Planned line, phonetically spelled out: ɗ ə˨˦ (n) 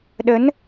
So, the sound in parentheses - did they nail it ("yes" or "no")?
yes